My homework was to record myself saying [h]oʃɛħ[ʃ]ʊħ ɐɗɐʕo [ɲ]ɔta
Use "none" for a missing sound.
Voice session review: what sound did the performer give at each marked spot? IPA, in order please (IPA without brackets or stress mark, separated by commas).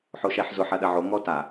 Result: ħ, z, ŋ